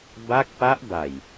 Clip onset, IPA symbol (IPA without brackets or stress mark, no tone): b